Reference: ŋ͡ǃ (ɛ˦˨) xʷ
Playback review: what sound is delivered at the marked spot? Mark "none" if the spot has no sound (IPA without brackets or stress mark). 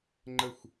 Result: ə˦˨